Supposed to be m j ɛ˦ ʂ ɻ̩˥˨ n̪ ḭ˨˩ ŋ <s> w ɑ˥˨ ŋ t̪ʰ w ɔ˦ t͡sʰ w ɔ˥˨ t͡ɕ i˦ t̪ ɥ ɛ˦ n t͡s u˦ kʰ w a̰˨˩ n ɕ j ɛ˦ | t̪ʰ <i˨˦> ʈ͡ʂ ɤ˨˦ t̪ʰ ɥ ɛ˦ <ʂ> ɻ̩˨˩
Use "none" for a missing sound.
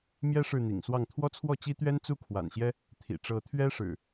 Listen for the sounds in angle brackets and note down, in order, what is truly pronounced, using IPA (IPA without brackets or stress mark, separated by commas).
s, ḭ˨˩, ʂ